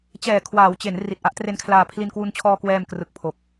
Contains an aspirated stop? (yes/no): yes